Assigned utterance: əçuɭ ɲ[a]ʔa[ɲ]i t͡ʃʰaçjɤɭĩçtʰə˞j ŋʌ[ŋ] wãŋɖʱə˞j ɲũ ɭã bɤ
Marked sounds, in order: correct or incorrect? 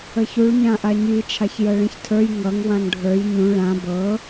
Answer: incorrect: ã, correct, correct

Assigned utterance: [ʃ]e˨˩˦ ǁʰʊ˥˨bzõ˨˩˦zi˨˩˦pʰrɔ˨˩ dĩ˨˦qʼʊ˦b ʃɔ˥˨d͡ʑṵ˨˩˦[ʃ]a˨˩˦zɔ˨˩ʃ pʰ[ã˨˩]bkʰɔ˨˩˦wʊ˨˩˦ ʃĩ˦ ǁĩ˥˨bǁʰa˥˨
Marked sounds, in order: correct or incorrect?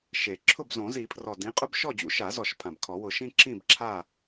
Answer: correct, correct, correct

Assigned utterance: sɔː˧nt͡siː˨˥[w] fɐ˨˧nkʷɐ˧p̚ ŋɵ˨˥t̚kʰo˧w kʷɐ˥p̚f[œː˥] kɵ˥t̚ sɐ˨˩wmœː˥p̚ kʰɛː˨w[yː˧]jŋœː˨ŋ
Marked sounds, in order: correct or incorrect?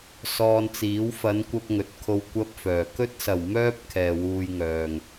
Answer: correct, incorrect: œː˨˩, incorrect: uː˧

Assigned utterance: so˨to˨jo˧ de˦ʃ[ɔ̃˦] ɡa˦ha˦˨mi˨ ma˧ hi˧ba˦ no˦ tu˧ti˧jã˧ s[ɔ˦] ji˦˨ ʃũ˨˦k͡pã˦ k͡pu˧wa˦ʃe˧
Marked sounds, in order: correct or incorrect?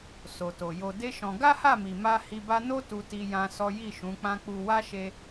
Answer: incorrect: ɔ̃˧, correct

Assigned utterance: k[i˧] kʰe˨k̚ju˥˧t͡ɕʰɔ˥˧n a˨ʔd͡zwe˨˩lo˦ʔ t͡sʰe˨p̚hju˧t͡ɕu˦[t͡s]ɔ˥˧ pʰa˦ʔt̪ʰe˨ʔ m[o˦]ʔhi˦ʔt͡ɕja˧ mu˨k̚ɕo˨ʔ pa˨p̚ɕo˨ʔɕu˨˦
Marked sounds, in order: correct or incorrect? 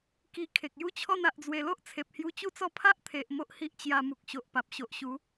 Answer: correct, correct, correct

